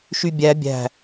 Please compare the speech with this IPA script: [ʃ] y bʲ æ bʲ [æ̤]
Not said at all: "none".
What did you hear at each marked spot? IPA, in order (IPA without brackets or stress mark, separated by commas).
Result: ʃ, æ̤